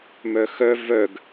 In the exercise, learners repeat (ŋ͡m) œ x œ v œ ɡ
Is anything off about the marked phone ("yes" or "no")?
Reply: yes